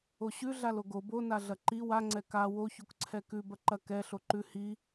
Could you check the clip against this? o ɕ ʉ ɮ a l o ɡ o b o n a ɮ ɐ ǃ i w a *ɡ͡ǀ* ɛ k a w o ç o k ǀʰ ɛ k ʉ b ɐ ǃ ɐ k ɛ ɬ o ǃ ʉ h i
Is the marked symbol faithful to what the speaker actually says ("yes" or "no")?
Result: no